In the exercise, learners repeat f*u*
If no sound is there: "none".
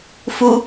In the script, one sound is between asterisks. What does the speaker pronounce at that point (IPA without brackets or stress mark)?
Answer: u